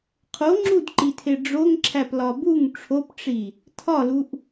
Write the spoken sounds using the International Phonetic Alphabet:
qʰ o ŋ͡ǁ u d ǃ i tʰ e ɖ͡ʐ o ŋ ǁʰ æ p l ɒ b u ŋ ʈ͡ʂʰ o p ʈ͡ʂ i | tʰ ɒ l u ʔ

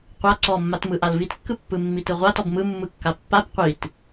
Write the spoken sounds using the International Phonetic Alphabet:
qʷ a ǀ ɔ mː a t m ɯ ʔ a l v i t kː ɯ pː ɯ mː i t ɯ ʁʷ a t ɔ b m ɯ mː ɯ kː a pː a b qʷ i t

